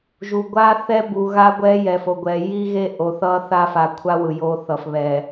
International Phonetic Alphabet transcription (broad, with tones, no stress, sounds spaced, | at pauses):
ʒ u˨ ɡʷ a˦ θ ɛ˦ b u˨ ɣ a˦ ɡʷ ɛ˦ j ɛ˨ f o˨ ɡʷ ɛ˨ j i˦ ɣ e˦ ʔ o˨ θ ʌ˦ θ a˦ f a˨ kʷʰ a˦ w ɯ˨ j o˦ θ ʌ˨ f β ɛ˨